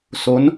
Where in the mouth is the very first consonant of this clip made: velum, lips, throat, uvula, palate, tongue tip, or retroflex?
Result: tongue tip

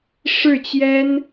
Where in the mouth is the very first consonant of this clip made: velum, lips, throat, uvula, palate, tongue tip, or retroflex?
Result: retroflex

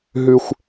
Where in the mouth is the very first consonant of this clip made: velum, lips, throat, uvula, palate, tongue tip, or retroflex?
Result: throat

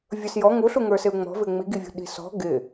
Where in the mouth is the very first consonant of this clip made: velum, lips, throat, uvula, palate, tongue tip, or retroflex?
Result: lips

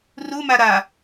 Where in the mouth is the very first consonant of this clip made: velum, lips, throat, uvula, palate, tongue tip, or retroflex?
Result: tongue tip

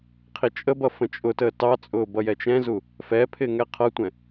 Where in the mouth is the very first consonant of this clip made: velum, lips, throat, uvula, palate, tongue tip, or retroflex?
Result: uvula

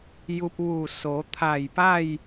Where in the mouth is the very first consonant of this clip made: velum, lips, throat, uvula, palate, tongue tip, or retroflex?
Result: palate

